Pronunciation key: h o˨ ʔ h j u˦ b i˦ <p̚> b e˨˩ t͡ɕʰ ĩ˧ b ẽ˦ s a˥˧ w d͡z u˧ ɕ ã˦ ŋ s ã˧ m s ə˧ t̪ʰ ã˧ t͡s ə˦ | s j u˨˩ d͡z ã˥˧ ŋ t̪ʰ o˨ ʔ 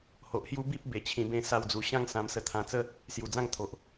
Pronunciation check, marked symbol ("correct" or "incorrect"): correct